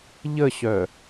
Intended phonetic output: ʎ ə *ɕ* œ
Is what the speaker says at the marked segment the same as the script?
yes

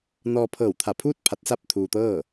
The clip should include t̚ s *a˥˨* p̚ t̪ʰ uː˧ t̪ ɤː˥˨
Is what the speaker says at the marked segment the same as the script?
yes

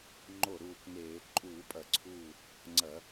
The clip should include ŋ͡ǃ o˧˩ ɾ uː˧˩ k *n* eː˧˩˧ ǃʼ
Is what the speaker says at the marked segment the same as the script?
yes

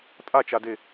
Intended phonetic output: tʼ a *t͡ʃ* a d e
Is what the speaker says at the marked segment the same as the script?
yes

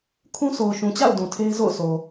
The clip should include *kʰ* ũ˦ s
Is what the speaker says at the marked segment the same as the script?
yes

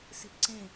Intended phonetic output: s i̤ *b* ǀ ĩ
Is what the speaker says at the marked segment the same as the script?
no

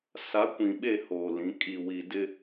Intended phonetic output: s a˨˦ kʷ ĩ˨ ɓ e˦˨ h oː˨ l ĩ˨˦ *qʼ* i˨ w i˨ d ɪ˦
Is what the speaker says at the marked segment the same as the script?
no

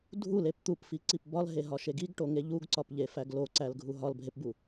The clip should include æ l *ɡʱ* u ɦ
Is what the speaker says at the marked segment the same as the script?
yes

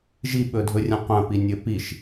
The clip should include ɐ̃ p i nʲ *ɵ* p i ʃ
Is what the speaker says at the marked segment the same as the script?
yes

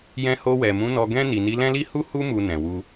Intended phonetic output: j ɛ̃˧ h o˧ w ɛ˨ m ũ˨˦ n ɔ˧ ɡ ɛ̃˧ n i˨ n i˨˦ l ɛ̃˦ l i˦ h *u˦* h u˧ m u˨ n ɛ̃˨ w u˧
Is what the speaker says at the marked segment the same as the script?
yes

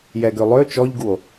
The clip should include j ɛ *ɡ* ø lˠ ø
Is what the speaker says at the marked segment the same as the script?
yes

